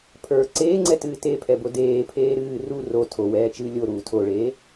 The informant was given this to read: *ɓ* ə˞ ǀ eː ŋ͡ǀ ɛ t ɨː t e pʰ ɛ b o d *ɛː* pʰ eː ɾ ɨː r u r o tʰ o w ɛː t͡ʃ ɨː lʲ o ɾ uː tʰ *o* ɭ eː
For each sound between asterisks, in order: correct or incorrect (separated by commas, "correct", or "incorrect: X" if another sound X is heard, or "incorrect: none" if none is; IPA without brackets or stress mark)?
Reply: incorrect: pʰ, incorrect: eː, correct